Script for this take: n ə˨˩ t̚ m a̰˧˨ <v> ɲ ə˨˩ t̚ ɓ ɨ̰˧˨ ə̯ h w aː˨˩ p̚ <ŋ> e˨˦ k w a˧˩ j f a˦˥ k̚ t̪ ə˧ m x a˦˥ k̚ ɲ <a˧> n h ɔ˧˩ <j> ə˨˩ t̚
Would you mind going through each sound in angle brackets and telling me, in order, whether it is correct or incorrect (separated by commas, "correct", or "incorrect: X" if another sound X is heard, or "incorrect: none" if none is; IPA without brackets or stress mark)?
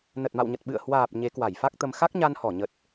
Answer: incorrect: w, incorrect: ɲ, correct, incorrect: ɲ